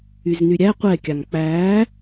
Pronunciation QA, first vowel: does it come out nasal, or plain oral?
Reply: oral